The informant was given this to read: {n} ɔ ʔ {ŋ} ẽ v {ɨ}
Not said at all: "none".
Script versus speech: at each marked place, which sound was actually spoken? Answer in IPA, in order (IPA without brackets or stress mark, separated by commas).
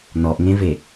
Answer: n, ŋ, e